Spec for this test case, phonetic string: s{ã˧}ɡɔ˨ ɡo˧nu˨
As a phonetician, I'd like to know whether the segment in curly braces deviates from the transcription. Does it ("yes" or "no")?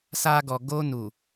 yes